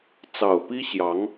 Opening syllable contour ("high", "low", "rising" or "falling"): low